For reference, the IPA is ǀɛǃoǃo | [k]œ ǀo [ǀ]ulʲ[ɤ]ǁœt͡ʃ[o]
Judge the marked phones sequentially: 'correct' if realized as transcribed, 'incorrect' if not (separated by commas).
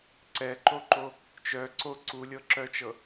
incorrect, correct, correct, incorrect